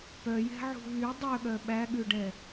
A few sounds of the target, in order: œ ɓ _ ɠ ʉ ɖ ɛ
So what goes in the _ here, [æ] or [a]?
æ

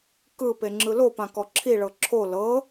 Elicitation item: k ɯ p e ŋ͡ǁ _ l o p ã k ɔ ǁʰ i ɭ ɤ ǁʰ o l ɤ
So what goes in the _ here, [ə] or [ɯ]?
ɯ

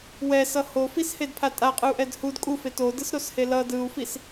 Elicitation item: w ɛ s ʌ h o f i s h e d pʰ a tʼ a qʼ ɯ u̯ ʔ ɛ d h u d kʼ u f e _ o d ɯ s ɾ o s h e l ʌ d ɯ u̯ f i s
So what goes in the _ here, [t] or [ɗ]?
t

